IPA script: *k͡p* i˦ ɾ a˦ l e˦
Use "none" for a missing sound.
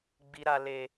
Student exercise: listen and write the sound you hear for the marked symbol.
ɡ͡b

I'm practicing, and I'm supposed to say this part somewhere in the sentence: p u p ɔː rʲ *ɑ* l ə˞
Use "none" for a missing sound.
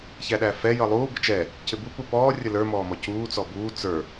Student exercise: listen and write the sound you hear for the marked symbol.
ʌ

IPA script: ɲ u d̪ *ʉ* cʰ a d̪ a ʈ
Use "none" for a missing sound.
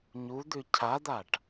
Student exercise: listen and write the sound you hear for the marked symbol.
ʉ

